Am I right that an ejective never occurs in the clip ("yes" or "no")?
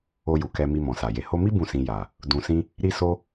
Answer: yes